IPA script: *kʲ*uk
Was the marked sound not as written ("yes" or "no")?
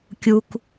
no